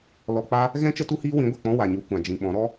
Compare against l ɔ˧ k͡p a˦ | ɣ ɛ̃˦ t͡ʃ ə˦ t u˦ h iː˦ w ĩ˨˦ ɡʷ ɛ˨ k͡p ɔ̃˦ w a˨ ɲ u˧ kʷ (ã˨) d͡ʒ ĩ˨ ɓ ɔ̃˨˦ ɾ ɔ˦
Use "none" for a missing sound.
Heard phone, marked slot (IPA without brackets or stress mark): ã˨